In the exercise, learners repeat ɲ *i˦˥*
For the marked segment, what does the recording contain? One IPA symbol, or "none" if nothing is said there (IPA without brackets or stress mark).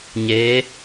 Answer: e˦˥